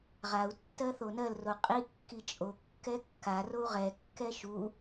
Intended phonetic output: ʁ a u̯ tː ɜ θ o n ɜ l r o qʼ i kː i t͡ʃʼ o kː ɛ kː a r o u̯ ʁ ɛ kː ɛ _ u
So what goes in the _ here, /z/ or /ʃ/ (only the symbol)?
ʃ